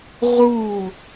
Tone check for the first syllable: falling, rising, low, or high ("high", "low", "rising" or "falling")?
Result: falling